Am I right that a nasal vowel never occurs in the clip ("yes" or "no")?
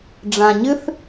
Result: no